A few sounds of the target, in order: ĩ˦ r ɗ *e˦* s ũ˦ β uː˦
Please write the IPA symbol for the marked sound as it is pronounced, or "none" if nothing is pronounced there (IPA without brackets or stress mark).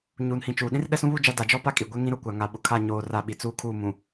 ɛ˦